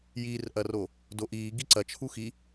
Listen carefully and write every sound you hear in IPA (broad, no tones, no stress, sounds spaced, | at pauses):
j iː r ʔ ɐ r o | d o ʔ iː ɡ i ǀ ɐ t͡ʃʰ u x i